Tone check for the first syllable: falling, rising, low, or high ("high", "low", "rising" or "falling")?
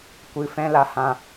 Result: low